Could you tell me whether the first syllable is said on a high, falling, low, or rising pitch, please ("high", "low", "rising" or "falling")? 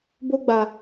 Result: high